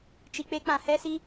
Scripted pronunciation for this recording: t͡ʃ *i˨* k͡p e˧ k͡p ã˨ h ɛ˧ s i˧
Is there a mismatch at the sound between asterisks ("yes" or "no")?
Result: no